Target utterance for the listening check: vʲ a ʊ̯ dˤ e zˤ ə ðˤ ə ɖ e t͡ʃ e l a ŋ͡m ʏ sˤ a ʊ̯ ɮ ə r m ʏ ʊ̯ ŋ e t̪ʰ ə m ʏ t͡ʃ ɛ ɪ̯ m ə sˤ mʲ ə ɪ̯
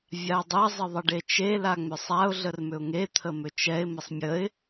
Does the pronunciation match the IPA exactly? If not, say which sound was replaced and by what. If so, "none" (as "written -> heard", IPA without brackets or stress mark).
none